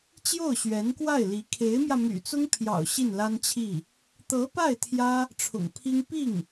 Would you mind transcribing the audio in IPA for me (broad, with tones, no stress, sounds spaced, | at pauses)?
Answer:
t͡ɕ j o˥˩ ʊ̯ ɕ ɥ ɛ˧˥ n k w a˥˩ ɪ̯ l i˧˥ kʰ e˧˥ ɪ̯ m j ä˧ m y̰˨˩ t͡s ʊ˥ ŋ pʰ j ɑ̰˨˩ ʊ̯ ɕ i˥˩ n l a˥ n t͡ɕʰ i˥˩ | t̪ ɤ˧˥ p a˥˩ ɪ̯ t̪ʰ j ä˥ | ʈ͡ʂʰ ʊ̰˨˩ ŋ pʰ i˥ ŋ p i˥˩ ŋ